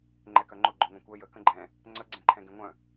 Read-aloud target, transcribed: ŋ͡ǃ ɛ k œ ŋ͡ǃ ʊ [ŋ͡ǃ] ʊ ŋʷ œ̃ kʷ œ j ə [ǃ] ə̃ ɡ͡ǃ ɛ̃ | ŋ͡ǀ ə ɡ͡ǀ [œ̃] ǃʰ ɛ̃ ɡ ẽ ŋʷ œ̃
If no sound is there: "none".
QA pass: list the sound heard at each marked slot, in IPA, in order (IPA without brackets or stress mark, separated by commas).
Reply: ɡ͡ǃ, k, ɛ̃